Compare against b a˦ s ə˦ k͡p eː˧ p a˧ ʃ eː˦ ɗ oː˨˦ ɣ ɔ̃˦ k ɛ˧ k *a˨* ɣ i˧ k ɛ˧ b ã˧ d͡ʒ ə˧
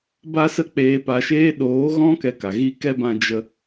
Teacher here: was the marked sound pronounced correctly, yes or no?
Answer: yes